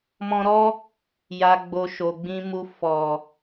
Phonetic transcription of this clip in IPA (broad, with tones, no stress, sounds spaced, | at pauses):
m ɔ̃˧ ɾ ɔ˦ | j a˨ ɡ͡b o˨ ʃ o˨ ɡ͡b ĩ˧ m u˧ f ɔ˨